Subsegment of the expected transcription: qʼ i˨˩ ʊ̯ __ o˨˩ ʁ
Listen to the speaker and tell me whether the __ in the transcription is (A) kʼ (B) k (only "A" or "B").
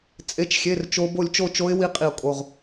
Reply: A